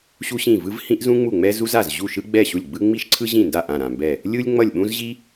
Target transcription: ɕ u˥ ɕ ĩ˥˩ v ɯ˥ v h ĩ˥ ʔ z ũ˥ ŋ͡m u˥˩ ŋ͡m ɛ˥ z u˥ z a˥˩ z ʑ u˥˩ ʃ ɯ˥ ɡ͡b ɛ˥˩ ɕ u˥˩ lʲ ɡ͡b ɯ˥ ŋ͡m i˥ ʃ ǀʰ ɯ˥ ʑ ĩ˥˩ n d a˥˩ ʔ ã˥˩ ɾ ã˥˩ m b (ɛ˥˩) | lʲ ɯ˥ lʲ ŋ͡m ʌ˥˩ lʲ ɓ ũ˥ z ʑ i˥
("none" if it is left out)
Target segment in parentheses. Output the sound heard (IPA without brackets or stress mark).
ɛ˥˩